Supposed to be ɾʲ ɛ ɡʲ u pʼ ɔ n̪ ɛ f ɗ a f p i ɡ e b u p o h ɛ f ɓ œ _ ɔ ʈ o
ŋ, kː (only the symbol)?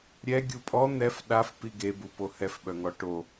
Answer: ŋ